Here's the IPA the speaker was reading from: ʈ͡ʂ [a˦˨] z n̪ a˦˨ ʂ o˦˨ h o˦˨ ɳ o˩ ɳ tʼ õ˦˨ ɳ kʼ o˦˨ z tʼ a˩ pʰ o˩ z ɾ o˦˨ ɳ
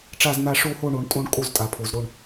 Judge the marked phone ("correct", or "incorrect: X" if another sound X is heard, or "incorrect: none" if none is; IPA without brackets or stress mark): correct